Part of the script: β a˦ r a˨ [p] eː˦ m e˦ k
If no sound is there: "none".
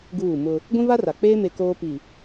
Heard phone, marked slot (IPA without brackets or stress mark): k͡p